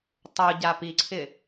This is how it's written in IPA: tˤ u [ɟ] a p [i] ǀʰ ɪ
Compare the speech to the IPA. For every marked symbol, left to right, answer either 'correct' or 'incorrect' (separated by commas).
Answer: correct, correct